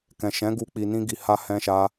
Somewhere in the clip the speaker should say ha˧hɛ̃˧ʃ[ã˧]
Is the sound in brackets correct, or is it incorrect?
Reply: incorrect